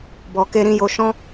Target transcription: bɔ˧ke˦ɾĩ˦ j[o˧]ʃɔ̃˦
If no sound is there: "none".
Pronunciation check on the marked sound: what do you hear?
o˧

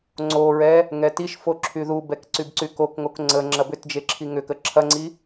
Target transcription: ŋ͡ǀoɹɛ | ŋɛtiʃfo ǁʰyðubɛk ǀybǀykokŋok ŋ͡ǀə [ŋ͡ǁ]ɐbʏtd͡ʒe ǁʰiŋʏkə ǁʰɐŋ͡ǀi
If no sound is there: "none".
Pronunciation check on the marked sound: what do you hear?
ŋ͡ǁ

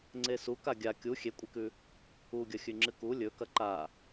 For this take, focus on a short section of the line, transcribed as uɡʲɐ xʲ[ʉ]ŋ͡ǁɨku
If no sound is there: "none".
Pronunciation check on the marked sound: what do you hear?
ʉ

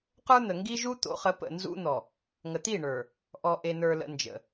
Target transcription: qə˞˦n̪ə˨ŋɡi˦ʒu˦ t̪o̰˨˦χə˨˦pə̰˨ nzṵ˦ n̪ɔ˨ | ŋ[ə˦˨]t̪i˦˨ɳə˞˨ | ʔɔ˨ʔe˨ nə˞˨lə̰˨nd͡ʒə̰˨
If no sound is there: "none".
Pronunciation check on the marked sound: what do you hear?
ə˨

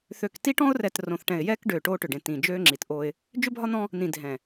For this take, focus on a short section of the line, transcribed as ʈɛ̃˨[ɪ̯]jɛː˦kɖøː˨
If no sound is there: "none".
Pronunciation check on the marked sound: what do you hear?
ɪ̯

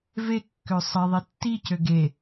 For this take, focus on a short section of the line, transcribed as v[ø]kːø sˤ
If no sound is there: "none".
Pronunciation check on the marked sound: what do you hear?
e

